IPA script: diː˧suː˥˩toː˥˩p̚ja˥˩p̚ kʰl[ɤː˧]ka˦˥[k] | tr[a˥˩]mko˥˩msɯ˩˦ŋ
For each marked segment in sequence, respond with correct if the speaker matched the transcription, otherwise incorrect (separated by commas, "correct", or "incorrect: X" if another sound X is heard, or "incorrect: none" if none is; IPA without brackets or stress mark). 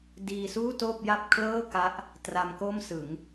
incorrect: ɤː˥˩, incorrect: ʔ, incorrect: a˧